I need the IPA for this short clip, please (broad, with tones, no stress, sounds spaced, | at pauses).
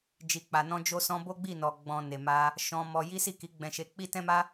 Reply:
d͡ʒ i˨ k͡p a˨ n ɔ̃˧ d͡ʒ o˧ s ɔ̃˧ b o˦ ɡ͡b i˦˨ n ɔ˨ ɡ͡b ɔ̃˨ n e˨ m a˧ | ʃ ɔ̃˧ m ɔ˧ j i˦ s i˦˨ k i˨˦ ɡ͡b ɛ̃˧ ʃ e˧ k͡p i˦ t ɛ̃˦ m a˦